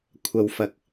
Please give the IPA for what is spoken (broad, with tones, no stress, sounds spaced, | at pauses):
kʷʰ ɐ˨ w f ɐ˨ k̚